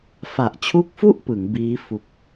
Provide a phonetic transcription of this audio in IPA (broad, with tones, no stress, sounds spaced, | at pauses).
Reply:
f a˨˩ ʔ t͡ɕʰ u˦˥ k̚ f u˥˩ ʔ p ɯ˩˦ ŋ b iː˦˥ f u˨˩ k̚